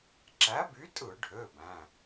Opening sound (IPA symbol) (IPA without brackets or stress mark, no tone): ǁ